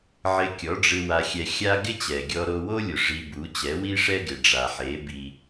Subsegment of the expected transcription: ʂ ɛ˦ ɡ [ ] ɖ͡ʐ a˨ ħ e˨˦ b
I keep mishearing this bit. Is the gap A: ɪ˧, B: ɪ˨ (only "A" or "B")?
B